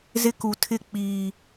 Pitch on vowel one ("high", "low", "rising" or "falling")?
high